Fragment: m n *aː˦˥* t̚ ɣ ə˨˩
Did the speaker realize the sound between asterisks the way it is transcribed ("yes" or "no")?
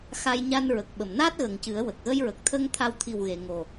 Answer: yes